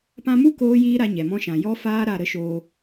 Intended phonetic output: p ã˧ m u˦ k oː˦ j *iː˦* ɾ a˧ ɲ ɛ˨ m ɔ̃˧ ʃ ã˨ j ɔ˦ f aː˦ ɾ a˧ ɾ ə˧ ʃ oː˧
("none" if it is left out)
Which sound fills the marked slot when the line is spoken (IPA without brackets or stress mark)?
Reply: iː˦